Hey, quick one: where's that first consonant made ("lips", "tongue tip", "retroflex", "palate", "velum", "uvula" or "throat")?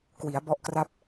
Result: velum